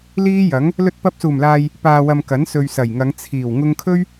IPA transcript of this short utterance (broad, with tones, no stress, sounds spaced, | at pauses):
l iː˥ j ɐ˨˥ ŋ | l ɵ˧ t̚ p ɐ˧ p̚ s uː˨˩ m l aː˨ j | p aː˨ w ɐ˨ m k ɐ˨˥ n s ɵ˨ ɥ s ɐ˨˩ j ŋ ɐ˨˧ ŋ t͡sʰ iː˨˩ w ŋ ʊ˧ ŋ kʰ ɵ˥ ɥ